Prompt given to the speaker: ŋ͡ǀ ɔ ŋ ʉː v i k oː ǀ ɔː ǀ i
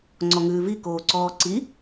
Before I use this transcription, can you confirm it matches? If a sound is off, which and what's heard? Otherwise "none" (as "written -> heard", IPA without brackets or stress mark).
none